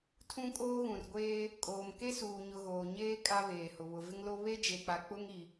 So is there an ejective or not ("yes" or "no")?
yes